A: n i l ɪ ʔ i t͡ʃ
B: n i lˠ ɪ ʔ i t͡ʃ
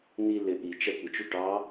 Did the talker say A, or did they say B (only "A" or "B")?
A